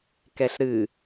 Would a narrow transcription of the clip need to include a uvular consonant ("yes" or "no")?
no